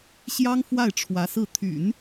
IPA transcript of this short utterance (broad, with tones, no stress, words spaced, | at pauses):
ɕjɑ˥ŋ fwa˥˩ɪ̯ʈ͡ʂʰwä˧˥sɹ̩˥˩ t̪ʰy̰˨˩˦n